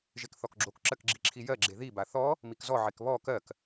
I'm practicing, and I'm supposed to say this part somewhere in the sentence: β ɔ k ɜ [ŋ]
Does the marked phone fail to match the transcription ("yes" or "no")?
yes